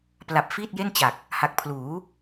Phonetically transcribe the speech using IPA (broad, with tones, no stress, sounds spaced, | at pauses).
p l a˨˩ p̚ f iː˥˩ t̚ j e˥˩ n t͡ɕ a˨˩ k̚ | h a˨˩ k̚ pʰ l uː˩˦